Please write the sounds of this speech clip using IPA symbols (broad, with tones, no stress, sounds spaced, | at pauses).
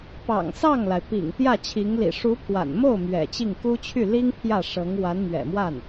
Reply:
p ɑ̰˨˩ ŋ s ɑ˥˩ ŋ l a˩ ɪ̯ p ḭ˨˩ ŋ t̪ j ä˥˩ t͡ɕʰ i˧˥ ŋ l ḭ˨˩ ʂ u˧˥ pʰ w a̰˨˩ n m o˥˩ ʊ̯ m ɥ ɛ̰˨˩ t͡ɕ i˥˩ ŋ k u˥ t͡ɕʰ y˥˩ l i˥ ŋ pʰ j ä˥˩ ʂ ɤ˧˥ ŋ w a˧˥ n m ɥ ɛ̰˨˩ m w a˥˩ n